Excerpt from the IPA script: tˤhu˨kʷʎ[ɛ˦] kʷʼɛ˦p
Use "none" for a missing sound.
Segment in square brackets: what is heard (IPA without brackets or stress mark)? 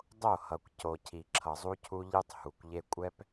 e˦